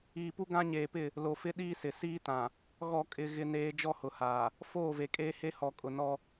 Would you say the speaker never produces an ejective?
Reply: no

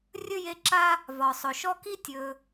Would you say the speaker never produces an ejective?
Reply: yes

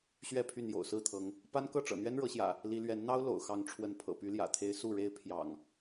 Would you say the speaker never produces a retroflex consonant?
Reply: no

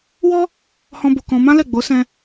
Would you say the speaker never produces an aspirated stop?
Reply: yes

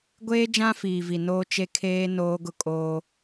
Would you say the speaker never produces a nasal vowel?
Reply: no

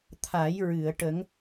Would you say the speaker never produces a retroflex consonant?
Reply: no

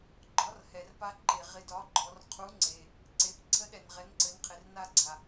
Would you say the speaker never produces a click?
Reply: no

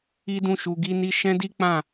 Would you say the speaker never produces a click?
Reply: yes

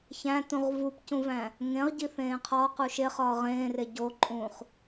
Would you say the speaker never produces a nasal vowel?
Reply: no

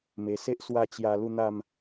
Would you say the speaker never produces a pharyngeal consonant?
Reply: yes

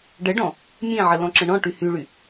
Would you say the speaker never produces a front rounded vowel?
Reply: no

